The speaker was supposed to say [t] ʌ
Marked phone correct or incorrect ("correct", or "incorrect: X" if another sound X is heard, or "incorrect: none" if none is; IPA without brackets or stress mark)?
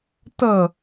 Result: correct